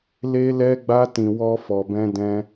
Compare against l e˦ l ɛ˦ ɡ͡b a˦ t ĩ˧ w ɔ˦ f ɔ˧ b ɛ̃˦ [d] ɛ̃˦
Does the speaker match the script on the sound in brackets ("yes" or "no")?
yes